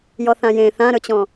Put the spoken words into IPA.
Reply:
j ɔ θ ã j ẽ θ ã ɾ ɵ t͡ɕ ɔ̃

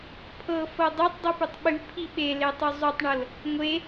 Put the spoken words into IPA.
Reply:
pʰ ɤ f ɤ dˤ e tˤ dˤ i p ʉ tˤ ɓ ʉ pʰ i ɓ e l e tˤ ʉ zˤ ʉ tˤ ɳ ɤ l | ŋʷ e

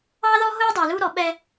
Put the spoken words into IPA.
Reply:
ɑ˦ ð ɔ˦ ɦ ʊː˦ dˤ ɛ˨ l u˦ ɾ ɔ˨˦ ɓ ɛ˦

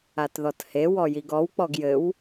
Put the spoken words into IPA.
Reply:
a t ð ɔ t h e w ɔ j i ɡ ɔ w k͡p ɔ ɡ j ɘ w

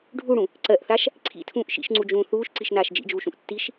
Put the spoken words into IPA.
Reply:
ɖʱ u ɽ ũ | ǀ ɜ ʔ θ a ʃ | ǀʰ ḭ tʰ ũː ʔ ʃ ḭ ʃ ŋ͡ǀ u d͡ʒ ũː θ uː ʃ ǀ i ʃ n aː ʃ d͡ʒ ḭ d͡ʒ uː ʃ ũ ʔ tː i ʃ

